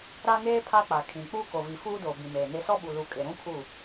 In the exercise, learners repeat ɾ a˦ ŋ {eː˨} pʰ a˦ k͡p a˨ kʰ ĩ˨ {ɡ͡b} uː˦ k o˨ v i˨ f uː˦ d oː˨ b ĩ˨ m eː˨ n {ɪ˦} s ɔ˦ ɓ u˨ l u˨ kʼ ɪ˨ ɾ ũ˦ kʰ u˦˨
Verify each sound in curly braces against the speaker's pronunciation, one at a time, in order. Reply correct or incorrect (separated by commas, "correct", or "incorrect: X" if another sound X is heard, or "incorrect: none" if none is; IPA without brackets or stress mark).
incorrect: eː˦, incorrect: k͡p, correct